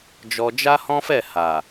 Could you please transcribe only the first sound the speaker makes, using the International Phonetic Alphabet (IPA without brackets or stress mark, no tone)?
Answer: d͡ʒ